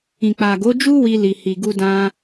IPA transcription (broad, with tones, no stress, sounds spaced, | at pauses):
ĩ˨ k͡p a˨ ɡ o˨˦ d͡ʒ u˦ w i˧ l i˨ h i˨ ɡ u˧ d ã˧